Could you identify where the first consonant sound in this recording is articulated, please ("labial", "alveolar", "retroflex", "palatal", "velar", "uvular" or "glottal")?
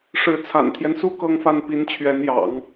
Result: retroflex